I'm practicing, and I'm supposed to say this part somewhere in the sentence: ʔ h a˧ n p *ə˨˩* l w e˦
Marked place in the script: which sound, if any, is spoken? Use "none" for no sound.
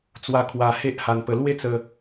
ə˧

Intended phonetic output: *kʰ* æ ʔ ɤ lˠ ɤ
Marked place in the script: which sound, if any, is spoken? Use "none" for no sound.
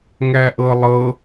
ŋ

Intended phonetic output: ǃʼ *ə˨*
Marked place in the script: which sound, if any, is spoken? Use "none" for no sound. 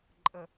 ə˨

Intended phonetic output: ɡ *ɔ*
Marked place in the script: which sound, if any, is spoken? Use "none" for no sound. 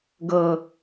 ɤ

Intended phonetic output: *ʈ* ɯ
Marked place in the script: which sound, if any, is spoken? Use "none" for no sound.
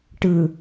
ʈ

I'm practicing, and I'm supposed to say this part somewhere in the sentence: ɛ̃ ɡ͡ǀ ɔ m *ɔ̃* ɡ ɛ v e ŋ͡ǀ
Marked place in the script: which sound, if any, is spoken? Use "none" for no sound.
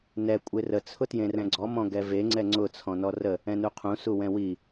ɔ̃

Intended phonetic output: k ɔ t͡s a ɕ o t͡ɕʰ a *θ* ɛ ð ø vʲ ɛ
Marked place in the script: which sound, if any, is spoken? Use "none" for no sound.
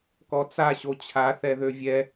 θ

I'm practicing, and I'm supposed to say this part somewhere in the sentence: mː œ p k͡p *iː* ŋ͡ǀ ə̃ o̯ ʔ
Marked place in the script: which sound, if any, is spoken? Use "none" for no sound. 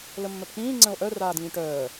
ĩː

